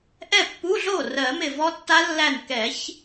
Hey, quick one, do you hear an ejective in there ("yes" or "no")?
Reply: no